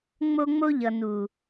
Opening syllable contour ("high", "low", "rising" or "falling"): high